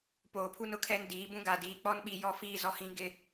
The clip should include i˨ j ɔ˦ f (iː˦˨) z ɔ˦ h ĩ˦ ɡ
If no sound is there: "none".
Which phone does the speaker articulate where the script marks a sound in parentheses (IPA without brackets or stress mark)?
iː˦˨